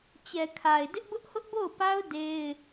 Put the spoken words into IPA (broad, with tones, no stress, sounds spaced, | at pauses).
t͡ɕ ɛ˨ kʰ a˨ ɪ̯ d ɪ˦ ʔ b ʊ˦ ʔ h ʊ˦ ʔ b o˦˨ ʊ̯ p a˦ ʊ̯ d e˦ ɪ̯